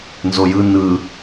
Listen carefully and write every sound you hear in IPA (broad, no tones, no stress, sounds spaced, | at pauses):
n z o j ɯ n ɯ